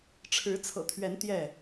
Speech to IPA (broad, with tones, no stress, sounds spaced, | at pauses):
ʈ͡ʂʰ ɻ̩˨˦ t͡sʰ ɤ̰˨˩ t̪ʰ ɥ ɛ˨˦ n t̪ j ɛ˥˨